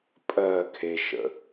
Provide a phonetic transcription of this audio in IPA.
pʼɜː kʰeʃə̰

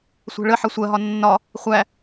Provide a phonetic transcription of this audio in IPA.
sʷɛ̤ɭəħʌ sʷɜɦɒ nːɒ | χʷæ

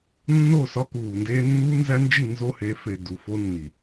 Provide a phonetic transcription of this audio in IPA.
nːo˦˨sɒ˦kuː˨ndeː˦ nːuː˦nzæ˦nd͡ʒi˦˨ nzo˦he˨˦fe˨ du˨fo˦nːi˨

